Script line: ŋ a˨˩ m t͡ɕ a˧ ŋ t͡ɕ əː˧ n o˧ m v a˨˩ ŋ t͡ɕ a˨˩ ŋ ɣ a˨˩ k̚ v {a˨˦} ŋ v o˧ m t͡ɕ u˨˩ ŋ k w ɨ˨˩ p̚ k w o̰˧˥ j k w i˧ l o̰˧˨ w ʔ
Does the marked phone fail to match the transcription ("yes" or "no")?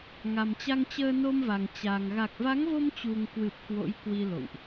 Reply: no